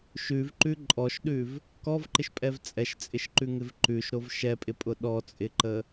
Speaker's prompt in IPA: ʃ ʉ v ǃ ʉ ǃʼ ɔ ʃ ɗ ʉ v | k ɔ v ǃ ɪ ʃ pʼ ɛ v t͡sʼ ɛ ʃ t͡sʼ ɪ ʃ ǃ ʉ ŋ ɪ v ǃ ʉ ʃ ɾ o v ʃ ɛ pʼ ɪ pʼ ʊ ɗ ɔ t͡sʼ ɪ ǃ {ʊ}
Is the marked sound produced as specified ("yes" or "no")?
no